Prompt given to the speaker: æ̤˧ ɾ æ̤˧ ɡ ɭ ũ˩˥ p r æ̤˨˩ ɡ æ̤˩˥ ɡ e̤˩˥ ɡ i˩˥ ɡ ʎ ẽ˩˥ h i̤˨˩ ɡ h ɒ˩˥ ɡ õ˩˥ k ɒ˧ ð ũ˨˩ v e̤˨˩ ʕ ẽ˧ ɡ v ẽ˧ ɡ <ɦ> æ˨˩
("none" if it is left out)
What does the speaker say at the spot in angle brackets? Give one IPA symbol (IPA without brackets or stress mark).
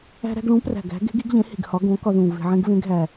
ɦ